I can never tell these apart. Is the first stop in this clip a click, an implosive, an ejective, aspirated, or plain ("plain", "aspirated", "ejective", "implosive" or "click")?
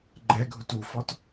click